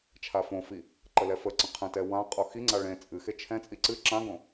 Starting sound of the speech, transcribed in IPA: t͡ʃʰ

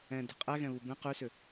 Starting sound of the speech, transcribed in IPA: ɛ̃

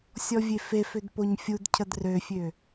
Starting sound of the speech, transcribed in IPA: sʲ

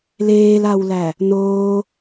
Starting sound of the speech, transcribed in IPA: l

